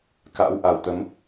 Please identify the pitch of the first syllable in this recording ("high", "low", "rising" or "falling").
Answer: rising